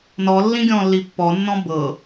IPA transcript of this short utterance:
n ɔ lː ĩ ɡʲ ɔ̃ lː i pː ɔ nː ɔ̃ b ɤ

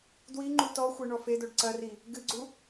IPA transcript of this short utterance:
d w i ŋ͡ǃ u t ɔ xʷ e ɳ ɔ f e d o ɖ ǀ ɐ r i | ɡ ɨ ɡ͡ǀ u

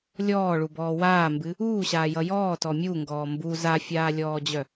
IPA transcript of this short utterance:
lʲ ɔː ɭ u b ɔː w aː m b ɨ | uː ɕ aː j ʌ j ɔː t ɔ mʲ u ŋ ɡ ɔː m b u z a fʲ aː lʲ ɔː d͡ʑ œ

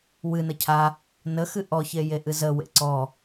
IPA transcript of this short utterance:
w ɨ n ə cʰ a | n ə x ɨ ʔ ɔ ç e j e ʔ ɨ z ə w ḛ ǀ ɔ

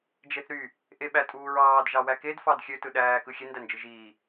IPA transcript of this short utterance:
d͡ʒ e θ ɾ y | ʔ e ɓ æ tʼ uː ɹ ɑː d ʒ ɑ w æ k e d f ɑ d xʲ ø t ɯ ɗ æː k ɯ xʲ e n d æ n d͡ʒ ɯ ʒ iː

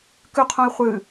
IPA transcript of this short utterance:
k ʉ qʰ õ i̯ χʷ ɨ

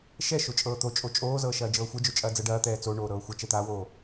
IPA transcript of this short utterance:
ʃ ɛ ʃ o t͡ʃʼ ɤː t̪ o t͡ʃʼ o t͡ʃʼ oː z ɤː ʃ ɐː d͡ʒ ɤː xʷ ɛ d͡ʒ o t͡ʃʼ ɐː d͡z ɤ ɖ ɐː t̪ ɛː t͡s o ɳ oː ɾ ɤː xʷ ɐ t͡ʃ ɛ t̪ aː w oː

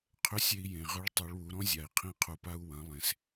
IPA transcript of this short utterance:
qʰ ʏ˧˥ sʲ e˧ i̯ j ẽ˩ ʁ ʏ˧˥ ɭ tˤ u˩˧ ɭ w u˩˧ ɾ ɔ̃˥ zʲ a˩ i̯ qʰ ĩ˧ qʰ u˩ p a˧ u̯ w ɐ̃˩˧ lˠ ẽ˩ s

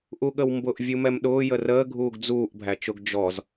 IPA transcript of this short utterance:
ʔ u ɠ ə w m b ʊ ʔ vʲ u m ɛ m ɗ ʊː j ə r əː ɡʱ uː ɡ d͡z uː ʔ bʱ æ t͡ʃ ʊ ɡ d͡ʒ ɔ z

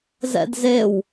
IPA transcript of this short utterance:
z ɛ̰ d z e w

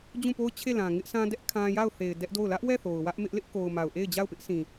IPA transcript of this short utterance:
d͡ʑ ũ˦˨ p o˦ ʊ̯ t͡ɕʰ e˦˨ l ã˨ ŋ ɪ˦ ʔ sʰ ã˦ d ɛ˦ ʔ kʰ ã˦ j a˦˨ ʊ̯ θ e˨ ɪ̯ d ɛ˦ ʔ d o˦˨ ʊ̯ l ä˦ ʔ w ɛ˦˨ θ o˨ ʊ̯ w ä˦ ʔ m ɪ˦ ʔ l ɪ˦ ʔ k o˨ ʊ̯ m a˨ ʊ̯ ʔ e˦˨ ɪ̯ d͡ʑ a˦˨ ʊ̯ p ɪ˦ ʔ sʰ ĩ˨

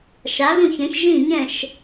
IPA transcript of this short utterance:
ʃ a˩˥ ɣ ũ˥˩ ç ɛ̃˩˥ ç ʒ ĩ˥˩ ɲ ɛ̃˥˩ ʃ

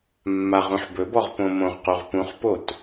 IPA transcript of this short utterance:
mː a ʁ ũ ħ b ɵ b ɔ ʁ p õ m õ ʁ q u ʁ p ũ χ p o t

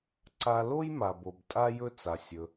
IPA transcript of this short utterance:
ǀ a˧ l o˥ j m a˩ b o˩ b tʼ a˥ j ɵ˥ t͡s a˩ sʲ ɵ˩

